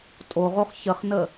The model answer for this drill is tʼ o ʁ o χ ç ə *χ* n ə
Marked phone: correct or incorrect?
correct